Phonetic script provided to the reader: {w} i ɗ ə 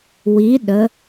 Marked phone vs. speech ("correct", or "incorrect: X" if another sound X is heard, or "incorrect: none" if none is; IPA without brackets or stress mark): correct